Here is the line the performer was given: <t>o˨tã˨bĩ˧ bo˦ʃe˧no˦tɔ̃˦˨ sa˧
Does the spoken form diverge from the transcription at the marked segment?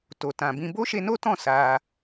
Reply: no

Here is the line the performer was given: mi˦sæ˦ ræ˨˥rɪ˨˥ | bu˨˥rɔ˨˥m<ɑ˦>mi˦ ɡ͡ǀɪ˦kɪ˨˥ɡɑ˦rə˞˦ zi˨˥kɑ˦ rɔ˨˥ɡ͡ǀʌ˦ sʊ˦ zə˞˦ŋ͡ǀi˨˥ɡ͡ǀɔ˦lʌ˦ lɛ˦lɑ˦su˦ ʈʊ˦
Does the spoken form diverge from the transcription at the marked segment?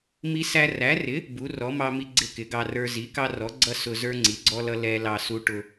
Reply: no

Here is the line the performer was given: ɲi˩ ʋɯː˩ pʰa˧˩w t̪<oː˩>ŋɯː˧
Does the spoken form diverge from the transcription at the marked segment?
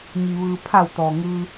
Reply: yes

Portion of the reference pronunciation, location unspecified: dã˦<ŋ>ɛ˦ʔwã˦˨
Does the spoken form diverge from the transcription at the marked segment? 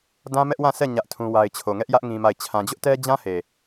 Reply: yes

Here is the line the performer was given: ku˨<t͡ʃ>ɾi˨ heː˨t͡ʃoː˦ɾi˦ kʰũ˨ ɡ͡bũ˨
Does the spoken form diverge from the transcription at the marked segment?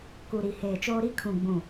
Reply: yes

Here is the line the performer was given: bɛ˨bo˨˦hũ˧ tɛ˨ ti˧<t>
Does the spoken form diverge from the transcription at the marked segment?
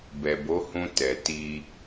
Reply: yes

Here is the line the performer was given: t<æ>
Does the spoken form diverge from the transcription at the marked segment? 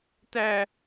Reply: no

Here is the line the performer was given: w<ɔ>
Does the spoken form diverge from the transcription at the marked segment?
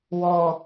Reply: no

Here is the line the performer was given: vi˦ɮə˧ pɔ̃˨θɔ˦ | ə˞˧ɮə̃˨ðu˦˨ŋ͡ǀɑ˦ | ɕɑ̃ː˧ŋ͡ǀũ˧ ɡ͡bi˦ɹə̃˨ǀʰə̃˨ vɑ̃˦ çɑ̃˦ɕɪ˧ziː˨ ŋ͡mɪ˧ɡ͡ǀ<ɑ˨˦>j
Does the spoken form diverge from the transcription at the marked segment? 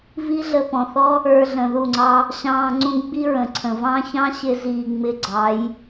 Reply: no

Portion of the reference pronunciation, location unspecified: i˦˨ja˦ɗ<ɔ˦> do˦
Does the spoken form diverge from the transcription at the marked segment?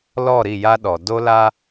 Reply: yes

